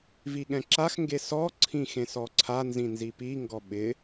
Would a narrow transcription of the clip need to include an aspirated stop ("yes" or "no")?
yes